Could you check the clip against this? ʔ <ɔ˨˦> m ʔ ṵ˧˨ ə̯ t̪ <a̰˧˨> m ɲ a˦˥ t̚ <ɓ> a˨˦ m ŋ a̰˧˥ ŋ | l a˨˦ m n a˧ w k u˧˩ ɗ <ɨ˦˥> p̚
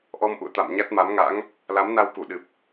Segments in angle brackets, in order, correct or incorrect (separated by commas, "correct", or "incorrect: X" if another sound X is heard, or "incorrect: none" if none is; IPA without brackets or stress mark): incorrect: ɔ˧, correct, incorrect: m, incorrect: ɨ˨˩